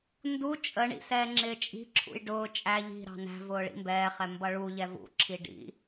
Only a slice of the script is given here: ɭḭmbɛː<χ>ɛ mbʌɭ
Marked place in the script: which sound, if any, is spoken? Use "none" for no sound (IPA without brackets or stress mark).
χ